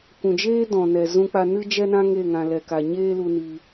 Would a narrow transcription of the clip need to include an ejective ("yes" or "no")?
no